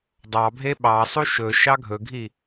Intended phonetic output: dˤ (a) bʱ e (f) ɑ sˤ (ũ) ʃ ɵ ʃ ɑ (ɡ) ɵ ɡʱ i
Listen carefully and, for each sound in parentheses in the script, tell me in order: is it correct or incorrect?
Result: incorrect: ɑ, incorrect: ɓ, incorrect: u, incorrect: ɡʱ

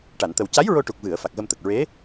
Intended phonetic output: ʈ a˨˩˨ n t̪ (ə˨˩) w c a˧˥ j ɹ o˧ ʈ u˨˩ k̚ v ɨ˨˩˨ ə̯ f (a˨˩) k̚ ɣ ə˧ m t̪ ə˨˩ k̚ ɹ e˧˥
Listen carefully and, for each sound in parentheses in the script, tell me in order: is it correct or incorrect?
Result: correct, correct

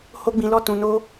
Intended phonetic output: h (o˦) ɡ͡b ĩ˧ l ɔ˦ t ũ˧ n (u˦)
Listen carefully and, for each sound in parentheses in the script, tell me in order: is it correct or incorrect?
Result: correct, incorrect: o˦

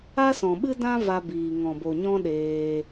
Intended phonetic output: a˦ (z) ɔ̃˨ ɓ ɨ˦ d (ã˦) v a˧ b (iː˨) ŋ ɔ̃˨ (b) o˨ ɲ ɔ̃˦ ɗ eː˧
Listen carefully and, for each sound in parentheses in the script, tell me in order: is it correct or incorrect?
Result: incorrect: s, correct, correct, correct

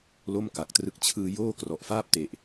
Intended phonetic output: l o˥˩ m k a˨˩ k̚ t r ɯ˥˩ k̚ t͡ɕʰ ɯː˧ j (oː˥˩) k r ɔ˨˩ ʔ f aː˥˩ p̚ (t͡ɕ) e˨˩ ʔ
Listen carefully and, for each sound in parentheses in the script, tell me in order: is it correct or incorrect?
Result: correct, incorrect: t

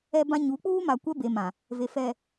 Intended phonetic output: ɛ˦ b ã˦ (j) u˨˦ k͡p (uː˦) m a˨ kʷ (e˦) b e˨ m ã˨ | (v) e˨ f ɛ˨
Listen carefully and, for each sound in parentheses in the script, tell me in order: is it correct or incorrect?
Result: incorrect: ɲ, correct, incorrect: ɛ˦, correct

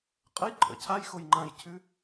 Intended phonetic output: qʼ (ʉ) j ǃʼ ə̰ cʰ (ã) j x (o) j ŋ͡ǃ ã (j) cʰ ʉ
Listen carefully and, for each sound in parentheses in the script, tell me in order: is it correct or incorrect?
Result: incorrect: ə, incorrect: a, correct, correct

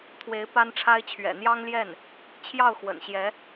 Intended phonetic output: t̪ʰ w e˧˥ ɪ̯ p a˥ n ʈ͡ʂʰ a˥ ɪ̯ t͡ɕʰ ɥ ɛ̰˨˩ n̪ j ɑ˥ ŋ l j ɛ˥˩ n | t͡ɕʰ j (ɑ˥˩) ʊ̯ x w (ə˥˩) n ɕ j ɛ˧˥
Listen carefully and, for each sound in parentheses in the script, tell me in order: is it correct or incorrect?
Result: correct, incorrect: ə̰˨˩

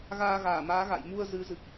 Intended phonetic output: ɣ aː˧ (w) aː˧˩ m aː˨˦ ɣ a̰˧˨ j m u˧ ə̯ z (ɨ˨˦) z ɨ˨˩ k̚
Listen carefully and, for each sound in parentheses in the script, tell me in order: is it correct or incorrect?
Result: incorrect: ɣ, correct

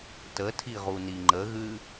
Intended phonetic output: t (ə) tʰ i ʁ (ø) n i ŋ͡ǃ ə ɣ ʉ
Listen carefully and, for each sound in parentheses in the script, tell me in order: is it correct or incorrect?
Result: correct, incorrect: u

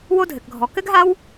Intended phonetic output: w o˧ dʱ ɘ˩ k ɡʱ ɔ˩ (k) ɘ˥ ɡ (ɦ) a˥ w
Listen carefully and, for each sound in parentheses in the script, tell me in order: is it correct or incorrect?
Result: correct, correct

